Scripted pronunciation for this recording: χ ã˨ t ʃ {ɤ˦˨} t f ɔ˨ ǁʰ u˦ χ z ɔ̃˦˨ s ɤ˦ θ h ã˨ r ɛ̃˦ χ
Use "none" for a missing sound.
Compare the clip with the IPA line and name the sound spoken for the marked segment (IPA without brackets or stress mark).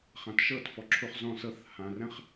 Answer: ɤ˦˨